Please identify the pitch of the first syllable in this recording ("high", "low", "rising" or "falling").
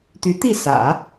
rising